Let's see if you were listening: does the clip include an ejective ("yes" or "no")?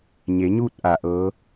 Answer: no